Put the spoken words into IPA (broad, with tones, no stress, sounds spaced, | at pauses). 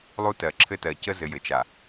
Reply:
lˠ u˦ t ɜ˨ ǁʰ ɘ˦ t ɜ˨ c ə˦ z ɘ˨ j ɘ˨ t͡ʃ a˨